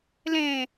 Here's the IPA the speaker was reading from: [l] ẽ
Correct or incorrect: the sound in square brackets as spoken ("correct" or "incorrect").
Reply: correct